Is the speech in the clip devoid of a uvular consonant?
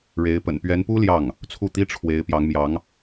yes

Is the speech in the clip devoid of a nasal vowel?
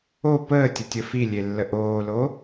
yes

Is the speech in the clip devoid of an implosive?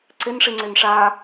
yes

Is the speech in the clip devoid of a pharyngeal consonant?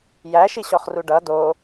yes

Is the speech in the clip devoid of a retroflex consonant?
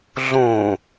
yes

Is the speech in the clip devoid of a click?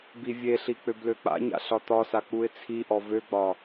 yes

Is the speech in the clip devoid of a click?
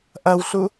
yes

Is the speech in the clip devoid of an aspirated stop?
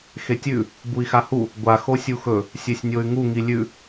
yes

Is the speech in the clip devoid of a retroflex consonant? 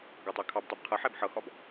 yes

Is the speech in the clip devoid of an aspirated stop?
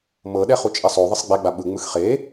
yes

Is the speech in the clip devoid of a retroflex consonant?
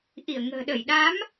yes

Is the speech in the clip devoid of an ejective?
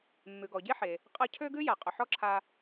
no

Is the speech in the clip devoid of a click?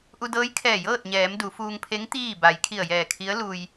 yes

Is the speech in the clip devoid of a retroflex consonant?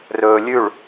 no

